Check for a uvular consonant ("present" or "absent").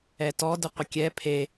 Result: present